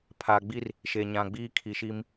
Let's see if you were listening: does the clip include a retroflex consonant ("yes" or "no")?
no